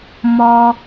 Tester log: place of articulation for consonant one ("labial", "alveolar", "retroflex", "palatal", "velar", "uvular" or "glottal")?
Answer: labial